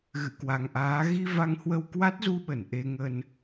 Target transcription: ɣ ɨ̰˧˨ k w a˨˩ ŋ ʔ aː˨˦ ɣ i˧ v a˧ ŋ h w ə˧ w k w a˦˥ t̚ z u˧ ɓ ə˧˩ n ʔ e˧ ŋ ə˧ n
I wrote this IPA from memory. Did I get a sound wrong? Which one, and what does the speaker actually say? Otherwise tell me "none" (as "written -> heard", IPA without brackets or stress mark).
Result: none